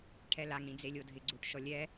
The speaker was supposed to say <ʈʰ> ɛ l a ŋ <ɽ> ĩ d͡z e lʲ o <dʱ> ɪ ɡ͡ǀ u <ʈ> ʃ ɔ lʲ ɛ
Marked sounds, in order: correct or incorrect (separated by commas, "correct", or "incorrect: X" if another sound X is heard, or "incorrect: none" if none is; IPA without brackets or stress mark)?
correct, correct, correct, correct